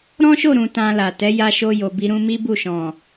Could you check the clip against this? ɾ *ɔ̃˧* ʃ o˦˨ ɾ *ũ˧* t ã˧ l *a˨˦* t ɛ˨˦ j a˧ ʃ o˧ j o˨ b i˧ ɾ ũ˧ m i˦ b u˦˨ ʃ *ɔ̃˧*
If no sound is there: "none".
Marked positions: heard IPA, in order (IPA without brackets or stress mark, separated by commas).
ɔ̃˦, ũ˧, a˨, ɔ̃˨